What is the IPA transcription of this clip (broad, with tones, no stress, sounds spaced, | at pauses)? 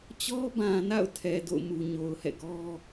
t͡ɕ ɔ˦ b ã˨ n a̰˦˨ ʊ̯ tʰ ɛ˨ d o̰˦˨ ʊ̯ m u˨ ɲ o˨ ʊ̯ h ɛ̰˦˨ ɡ ɔ˦